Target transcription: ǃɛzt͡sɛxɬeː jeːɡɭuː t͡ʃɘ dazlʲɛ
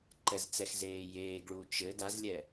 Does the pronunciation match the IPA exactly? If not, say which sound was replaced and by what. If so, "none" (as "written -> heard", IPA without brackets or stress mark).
ɬ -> z